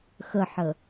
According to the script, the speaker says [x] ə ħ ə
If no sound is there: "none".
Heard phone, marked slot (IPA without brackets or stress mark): x